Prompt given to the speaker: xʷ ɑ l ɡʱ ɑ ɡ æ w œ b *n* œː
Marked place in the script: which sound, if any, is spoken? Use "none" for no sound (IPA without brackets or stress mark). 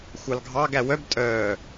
tʼ